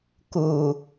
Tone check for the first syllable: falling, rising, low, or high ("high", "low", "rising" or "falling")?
low